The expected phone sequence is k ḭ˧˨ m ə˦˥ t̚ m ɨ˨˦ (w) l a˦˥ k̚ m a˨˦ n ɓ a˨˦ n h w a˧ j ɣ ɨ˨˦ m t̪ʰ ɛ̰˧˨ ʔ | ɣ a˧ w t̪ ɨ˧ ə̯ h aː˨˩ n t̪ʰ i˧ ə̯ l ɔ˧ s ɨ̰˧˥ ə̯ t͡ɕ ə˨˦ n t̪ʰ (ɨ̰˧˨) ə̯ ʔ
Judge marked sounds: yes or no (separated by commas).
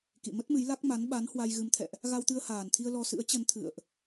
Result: no, yes